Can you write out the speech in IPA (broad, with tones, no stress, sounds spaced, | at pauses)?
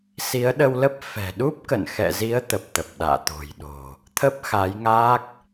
s i˨˦ ə̯ ɗ ə˧ w l ə˦˥ p̚ f ɛ̤˨˩ ɗ u˦˥ p̚ k ə̰˧˨ n x ɛ̰˧˨ z i˨˦ ə̯ t̪ ə˨˩ p̚ t̪ ə˨˩ p̚ ɗ a̰ː˧˨ t̪ o̤˨˩ j ɗ o̤˨˩ | t̪ʰ ə˦˥ p̚ x a˨˦ j ŋ aː˦˥ k̚